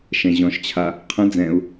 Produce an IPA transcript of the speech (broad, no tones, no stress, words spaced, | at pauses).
ʃɛ̃ʑɔ̃ʃt͡ɕʰa | qʰə̃ d͡zɛ̃u̯